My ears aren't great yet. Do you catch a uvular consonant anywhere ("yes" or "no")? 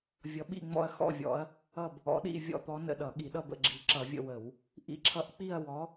no